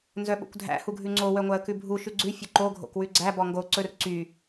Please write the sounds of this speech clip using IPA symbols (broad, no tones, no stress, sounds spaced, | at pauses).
n z œ ɓ o̰ kʷ dʱ æ̰ h u ɡʱ ʉ ŋ͡ǀ o w œ ŋʷ æ ə̯ k ʉ bʱ u ʃ ʉ ɡ͡ǀ ʉ fʲ ɵ ǃ o ɡʱ o̰ k w ʉ ɡ͡ǀ æ b ɔ ŋ ɡ o ǀ ɵ r ǀ y